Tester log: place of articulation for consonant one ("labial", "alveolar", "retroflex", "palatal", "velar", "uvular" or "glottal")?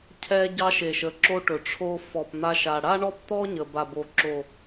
palatal